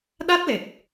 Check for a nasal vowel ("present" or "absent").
absent